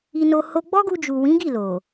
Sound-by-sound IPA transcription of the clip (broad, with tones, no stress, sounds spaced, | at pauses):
i˧ n o˧ h o˧ ɡ͡b ɔ˦ ɡ u˧ d͡ʒ u˨ w ĩ˨˦ ɡ i˦˨ l o˨